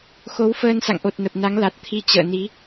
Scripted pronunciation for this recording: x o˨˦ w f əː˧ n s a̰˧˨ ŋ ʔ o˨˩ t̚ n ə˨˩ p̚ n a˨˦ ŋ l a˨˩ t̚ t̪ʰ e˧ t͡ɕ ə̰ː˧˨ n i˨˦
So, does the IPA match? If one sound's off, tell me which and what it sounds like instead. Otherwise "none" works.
e˧ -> i˧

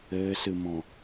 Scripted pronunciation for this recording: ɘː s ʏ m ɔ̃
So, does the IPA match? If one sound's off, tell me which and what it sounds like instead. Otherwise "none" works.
ʏ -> ɨ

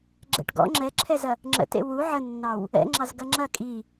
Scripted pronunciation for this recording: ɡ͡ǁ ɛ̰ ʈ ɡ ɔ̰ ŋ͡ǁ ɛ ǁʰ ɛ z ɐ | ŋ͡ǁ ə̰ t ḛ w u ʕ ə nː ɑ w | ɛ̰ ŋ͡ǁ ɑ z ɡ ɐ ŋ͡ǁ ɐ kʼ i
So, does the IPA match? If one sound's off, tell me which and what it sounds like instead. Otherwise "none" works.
none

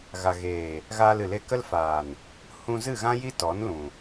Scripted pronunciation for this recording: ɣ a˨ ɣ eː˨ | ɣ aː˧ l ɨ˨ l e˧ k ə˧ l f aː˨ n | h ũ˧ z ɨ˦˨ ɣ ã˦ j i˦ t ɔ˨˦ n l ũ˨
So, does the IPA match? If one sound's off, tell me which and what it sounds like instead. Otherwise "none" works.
none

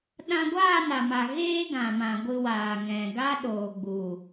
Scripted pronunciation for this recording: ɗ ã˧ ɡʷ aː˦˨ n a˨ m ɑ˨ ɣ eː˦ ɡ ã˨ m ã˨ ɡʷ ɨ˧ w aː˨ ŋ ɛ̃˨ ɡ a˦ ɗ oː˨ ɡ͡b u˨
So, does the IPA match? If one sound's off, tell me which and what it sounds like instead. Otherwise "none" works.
ɑ˨ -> a˨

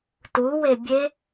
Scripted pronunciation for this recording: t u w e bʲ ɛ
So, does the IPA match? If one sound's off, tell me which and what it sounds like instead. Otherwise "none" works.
ɛ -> e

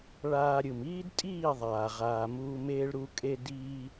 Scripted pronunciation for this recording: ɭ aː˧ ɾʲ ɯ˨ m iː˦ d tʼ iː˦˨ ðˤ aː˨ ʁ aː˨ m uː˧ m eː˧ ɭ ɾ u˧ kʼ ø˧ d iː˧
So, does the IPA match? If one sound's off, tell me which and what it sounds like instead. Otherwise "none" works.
ø˧ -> e˧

